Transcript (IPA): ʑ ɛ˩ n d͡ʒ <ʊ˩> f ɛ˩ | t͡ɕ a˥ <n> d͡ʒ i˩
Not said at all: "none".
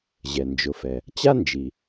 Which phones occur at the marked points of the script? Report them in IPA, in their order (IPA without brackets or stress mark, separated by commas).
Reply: ʊ˩, n